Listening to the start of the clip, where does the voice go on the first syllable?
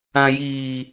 low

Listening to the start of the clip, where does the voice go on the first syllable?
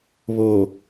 low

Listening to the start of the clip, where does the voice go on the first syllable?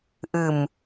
low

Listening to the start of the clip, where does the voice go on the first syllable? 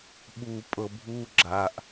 low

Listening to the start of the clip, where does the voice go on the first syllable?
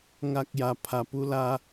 high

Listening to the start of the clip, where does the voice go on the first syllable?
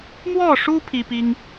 falling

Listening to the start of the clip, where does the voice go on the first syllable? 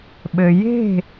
low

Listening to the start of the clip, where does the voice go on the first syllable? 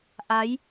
rising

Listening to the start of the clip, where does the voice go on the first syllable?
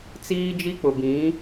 high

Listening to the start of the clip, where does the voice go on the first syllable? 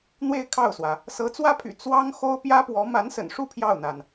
falling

